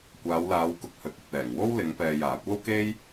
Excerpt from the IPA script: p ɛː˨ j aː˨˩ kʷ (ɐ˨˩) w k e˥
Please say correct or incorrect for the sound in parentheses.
incorrect